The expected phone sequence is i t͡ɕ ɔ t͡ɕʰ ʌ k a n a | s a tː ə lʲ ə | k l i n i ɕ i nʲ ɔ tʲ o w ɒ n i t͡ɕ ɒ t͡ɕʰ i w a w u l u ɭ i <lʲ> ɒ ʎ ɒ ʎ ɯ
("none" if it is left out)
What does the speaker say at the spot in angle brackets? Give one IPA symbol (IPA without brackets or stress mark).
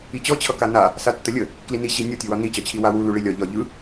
lʲ